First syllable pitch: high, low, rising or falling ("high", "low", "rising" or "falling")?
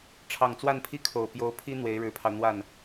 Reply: low